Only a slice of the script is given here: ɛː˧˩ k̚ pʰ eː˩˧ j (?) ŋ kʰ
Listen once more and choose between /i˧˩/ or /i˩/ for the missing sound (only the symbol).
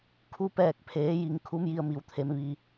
i˩